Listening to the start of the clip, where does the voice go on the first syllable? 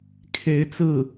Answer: rising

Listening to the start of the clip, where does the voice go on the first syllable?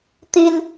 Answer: high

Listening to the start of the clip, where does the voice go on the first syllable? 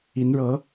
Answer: rising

